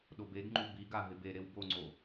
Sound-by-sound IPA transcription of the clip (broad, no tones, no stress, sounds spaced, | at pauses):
ɗ o b e ɡ ŋ͡ǃ u b i ɡ a ɦ ɪ b e ɾ e w b o ŋ͡ǀ o